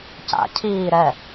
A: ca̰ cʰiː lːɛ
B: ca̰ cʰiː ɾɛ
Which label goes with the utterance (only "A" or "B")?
B